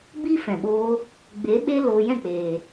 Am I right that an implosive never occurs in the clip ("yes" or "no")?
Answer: no